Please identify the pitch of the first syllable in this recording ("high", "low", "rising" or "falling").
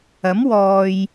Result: rising